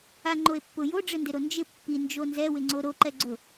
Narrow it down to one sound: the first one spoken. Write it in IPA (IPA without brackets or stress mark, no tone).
a